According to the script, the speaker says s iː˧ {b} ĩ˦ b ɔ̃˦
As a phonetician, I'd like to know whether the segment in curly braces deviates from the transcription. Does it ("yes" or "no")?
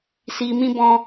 yes